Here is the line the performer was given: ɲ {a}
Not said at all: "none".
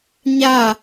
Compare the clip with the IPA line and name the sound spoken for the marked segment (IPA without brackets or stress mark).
a